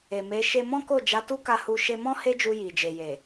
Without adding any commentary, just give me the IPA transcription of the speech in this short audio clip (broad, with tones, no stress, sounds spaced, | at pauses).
e˨ m e˨˦ ʃ e˧ m ɔ̃˦ k o˦˨ d͡ʒ a˨˦ t u˦ k a˧ h u˧ ʃ e˧ m ɔ̃˦ h e˦ d͡ʒ u˧ j i˨ d͡ʒ e˨ j e˨